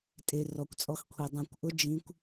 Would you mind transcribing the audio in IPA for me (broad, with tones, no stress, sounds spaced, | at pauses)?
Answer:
tʼ e˧ r ɔ˧ kʷ t͡sʼ ɔ˦˥ x kʷʰ i˧ dˤ ã˧ kʷ ʔ ʊ˦˥ d͡ʒ ĩ˦˥ kʷ